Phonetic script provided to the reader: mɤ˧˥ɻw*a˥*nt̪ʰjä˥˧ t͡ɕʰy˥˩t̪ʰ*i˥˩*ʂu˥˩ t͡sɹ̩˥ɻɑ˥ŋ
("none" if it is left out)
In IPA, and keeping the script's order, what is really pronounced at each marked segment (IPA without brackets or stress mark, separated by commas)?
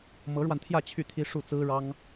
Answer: a˧, i˥